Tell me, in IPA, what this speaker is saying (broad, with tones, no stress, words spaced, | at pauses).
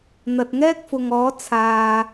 n̪ɐ˨t̚ŋɛː˥k̚fʊ˨ŋɔː˨˥ t͡sʰaː˨